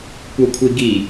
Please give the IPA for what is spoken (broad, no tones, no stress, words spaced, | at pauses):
kʷɤkʷʰiɡi